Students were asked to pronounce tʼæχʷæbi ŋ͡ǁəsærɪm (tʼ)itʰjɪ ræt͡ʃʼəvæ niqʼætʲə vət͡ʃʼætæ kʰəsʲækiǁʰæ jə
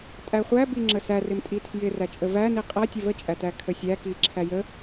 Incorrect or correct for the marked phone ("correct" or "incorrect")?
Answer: correct